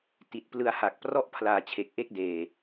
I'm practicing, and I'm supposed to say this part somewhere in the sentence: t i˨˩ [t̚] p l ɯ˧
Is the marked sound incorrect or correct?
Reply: correct